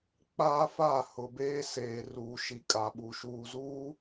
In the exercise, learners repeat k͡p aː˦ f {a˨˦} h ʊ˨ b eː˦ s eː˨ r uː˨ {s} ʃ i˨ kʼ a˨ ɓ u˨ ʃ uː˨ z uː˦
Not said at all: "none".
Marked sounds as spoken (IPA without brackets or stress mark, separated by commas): a˦˨, none